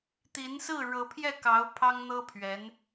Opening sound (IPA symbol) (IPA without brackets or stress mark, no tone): t̪